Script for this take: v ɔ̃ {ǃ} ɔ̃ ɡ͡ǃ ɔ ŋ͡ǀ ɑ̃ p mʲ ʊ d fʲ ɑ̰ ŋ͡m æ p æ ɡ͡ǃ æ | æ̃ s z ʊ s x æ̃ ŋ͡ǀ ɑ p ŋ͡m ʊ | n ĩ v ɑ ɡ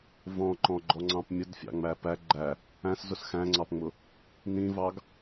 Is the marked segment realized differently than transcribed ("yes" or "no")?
no